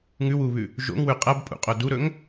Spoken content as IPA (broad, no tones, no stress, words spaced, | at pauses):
ŋʉwuβʉ | ʒo̰ŋwʉ qʼɐbpʼṵqʼo duɾɵŋ